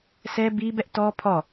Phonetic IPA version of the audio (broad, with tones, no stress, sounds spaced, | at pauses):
s ɛ˦ b i˦ b ɛ˦ ʔ t ɔ˦ pʰ ɔ˦˨